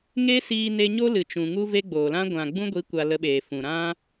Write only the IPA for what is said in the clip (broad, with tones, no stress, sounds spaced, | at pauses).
ŋ e˦ s iː˧ n e˧ ɲ o˦ l ɨ˨ t͡ʃ ũ˨ ŋ u˦ v e˦ ɡ͡b oː˨ l ã˦ ɡʷ ã˨ ɡ͡b ũ˦ ɡʷ i˨˦ kʷ a˨ l ə˧ ɓ eː˨ f ũ˨ ɾ ã˦